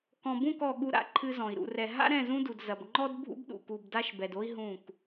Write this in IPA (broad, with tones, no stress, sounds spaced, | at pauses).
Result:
k ɔ̃˨ b ũ˦˨ k ɔ˨ ɠ u˦ ɾ a̰˦˨ ǃʰ ɨ˦ z ɔ̃˨ i̯ ɾ ṵ˨ r ɛ˨ ɦ a̰˦ ɾ ɛ̃˦˨ z ũ˦ d u˨ d z ɐ˨ b ŋ͡ǃ ɔ˦ d bʱ ṵ˦ b ɗ ṵ˨ k u˨ b d a˦ ʃ b ɛ˨ d o˦ i̯ ɦ ũ˦˨ k